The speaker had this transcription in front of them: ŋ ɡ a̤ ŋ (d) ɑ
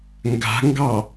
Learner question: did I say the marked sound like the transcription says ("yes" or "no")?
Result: no